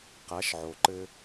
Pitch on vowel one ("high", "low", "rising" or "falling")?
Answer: rising